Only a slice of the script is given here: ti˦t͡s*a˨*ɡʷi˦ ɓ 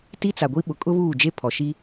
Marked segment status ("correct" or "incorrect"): correct